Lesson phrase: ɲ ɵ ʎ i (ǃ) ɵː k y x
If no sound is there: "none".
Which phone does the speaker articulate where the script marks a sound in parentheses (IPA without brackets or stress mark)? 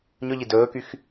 d